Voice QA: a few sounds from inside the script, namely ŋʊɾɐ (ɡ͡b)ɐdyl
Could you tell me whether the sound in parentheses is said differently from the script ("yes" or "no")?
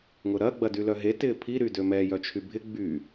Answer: no